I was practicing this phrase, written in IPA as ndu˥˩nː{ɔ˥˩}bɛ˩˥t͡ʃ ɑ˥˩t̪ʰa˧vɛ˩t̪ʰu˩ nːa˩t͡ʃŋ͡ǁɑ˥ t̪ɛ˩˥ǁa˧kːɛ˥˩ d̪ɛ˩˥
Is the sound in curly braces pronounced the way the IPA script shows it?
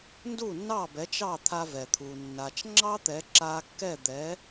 no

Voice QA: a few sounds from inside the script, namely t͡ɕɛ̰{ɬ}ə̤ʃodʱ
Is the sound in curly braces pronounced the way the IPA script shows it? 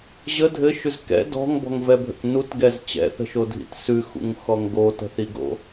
no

